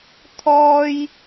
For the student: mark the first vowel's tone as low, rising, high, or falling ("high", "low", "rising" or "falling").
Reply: high